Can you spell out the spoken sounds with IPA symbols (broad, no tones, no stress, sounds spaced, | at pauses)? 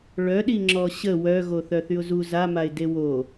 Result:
ɭ œ ɗ i ŋ͡ǁ ɔ ɕ ə w œ ɣ o θ œ θ y ʊ̯ z u z a m a ɪ̯ d e w o